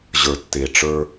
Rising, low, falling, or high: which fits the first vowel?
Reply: low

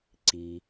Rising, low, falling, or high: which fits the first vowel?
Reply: low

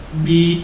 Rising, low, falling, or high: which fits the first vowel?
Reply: high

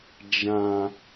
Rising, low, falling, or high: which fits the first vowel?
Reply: low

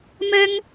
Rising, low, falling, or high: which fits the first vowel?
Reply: high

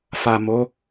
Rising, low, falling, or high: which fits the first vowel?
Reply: low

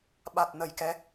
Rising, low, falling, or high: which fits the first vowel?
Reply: low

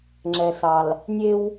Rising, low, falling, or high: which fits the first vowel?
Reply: low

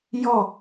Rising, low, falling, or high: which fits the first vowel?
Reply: falling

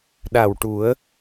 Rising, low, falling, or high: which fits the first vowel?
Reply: low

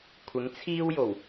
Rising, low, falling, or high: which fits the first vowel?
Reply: rising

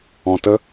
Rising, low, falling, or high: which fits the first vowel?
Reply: low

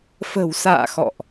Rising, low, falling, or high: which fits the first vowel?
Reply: low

